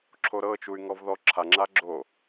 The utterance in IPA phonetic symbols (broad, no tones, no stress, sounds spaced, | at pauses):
ǁʰ o ɾ ɤ t͡ʃ u y̯ ŋ ɔ v ð ɔ ǁʰ a ŋ͡ǁ a ɡ͡ǁ o